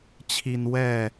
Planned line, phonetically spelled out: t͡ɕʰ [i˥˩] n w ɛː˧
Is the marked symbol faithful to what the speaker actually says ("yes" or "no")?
no